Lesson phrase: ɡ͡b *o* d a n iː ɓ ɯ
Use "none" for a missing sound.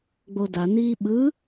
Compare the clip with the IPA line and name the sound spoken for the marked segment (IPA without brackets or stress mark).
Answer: o